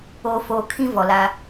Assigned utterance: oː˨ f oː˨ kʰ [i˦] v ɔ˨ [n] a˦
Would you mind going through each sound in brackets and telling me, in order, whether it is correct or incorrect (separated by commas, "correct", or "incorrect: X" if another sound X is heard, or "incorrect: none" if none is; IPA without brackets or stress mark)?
incorrect: ĩ˦, incorrect: l